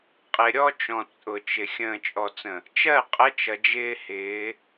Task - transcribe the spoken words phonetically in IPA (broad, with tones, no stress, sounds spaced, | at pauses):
qʼ ɪ˨ ɾʲ ɔ˦ t͡ʃ ɔ̃˨ t͡sʼ ʊ˨ t͡ʃ ɪ˨ xʲ ə̃ː˨ t͡ʃʼ ɔ˨ t͡s ə̃˨ | t͡ʃ ɜ˦˨ qʼ ə˦ t͡ʃ ʌ˨ d͡ʒ ɪː˦ h ɪː˨˦